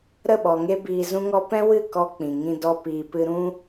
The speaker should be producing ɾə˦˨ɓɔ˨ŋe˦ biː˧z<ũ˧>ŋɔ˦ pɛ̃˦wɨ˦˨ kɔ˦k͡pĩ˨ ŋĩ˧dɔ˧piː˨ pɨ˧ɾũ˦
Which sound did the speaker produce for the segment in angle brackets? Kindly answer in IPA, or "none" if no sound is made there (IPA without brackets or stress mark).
ũ˦